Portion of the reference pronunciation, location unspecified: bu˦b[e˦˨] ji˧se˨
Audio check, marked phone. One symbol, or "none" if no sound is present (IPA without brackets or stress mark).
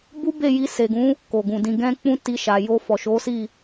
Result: e˦˨